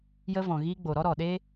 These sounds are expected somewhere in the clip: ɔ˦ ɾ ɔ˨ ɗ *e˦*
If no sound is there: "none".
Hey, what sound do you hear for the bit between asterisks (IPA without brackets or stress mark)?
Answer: e˦